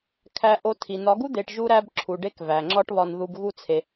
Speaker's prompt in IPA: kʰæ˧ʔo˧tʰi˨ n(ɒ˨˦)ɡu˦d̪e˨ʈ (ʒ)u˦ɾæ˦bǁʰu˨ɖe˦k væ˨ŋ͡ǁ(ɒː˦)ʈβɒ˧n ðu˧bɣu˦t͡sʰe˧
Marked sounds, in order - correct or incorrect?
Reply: correct, correct, incorrect

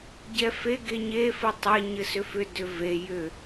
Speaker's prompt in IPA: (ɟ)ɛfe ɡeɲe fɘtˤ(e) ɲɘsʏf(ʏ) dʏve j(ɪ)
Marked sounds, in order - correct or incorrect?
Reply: correct, correct, correct, incorrect

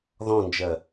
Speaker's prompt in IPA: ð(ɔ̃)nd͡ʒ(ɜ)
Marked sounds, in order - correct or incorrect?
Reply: correct, correct

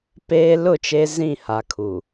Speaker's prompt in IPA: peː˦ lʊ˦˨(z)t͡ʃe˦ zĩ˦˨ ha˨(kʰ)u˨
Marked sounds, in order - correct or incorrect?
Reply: incorrect, correct

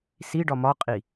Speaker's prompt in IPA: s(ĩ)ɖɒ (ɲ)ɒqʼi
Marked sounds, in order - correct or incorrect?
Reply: incorrect, incorrect

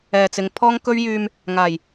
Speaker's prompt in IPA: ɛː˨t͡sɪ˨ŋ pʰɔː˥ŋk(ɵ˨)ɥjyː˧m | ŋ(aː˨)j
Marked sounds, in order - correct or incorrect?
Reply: incorrect, incorrect

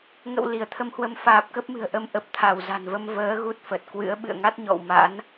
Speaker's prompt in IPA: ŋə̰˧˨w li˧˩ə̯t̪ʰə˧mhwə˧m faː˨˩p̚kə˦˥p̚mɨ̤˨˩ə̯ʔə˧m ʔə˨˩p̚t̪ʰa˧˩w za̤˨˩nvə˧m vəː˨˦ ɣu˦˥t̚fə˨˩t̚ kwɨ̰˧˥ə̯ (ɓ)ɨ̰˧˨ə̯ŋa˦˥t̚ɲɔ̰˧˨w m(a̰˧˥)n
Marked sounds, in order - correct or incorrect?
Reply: correct, correct

